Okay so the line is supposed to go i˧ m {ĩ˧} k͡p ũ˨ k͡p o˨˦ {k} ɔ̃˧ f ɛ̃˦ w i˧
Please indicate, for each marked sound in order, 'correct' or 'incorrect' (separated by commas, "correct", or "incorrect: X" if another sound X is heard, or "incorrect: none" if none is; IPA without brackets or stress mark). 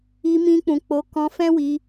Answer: correct, correct